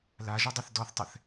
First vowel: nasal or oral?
oral